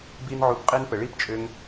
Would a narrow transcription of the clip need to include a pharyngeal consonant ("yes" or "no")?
yes